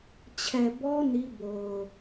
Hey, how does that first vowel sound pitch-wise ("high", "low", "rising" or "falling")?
low